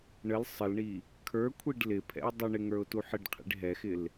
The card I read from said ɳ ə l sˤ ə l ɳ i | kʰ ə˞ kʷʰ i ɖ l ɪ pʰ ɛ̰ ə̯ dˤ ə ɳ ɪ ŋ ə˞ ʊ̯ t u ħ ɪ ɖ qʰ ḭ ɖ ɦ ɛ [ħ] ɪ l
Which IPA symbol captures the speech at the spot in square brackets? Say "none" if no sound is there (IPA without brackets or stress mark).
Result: x